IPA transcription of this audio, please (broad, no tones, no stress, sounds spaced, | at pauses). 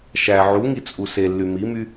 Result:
ʃ æ ʕ u ŋ i t͡sʼ u s e lː y m i m y